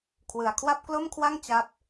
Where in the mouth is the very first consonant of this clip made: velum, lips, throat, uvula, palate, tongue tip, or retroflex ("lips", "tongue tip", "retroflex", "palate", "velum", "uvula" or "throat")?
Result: velum